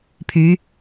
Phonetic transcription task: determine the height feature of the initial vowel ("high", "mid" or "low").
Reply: high